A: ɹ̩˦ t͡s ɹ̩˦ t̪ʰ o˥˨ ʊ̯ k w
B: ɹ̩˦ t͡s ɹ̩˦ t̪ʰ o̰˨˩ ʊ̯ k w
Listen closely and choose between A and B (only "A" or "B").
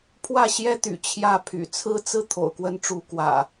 B